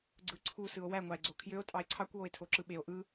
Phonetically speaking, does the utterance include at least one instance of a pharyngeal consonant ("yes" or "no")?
no